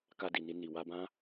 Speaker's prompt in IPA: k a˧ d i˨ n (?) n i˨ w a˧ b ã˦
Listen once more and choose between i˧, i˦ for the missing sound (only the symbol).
i˧